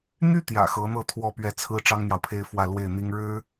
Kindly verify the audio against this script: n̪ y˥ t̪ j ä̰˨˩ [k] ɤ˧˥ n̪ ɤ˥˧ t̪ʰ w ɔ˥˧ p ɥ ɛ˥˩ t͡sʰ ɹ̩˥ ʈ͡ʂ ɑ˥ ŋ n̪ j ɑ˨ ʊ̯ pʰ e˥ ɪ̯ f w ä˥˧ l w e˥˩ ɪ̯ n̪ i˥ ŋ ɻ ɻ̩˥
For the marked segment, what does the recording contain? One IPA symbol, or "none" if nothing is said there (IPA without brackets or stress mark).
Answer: x